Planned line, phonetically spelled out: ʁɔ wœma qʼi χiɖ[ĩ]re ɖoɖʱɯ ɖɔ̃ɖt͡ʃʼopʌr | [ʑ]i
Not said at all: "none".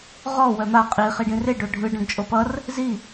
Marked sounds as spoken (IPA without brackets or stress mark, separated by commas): ĩ, z